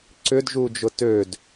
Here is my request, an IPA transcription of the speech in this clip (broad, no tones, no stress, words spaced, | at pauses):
ǀʏdʒud͡ʒʊ tød